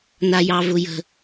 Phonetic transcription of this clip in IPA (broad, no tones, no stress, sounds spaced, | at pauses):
n a j ɑ v ʊ j ə̤